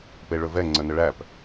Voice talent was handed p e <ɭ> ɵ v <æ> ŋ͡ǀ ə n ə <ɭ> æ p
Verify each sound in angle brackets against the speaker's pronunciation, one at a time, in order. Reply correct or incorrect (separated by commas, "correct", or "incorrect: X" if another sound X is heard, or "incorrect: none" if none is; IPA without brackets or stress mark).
correct, incorrect: ɛ, correct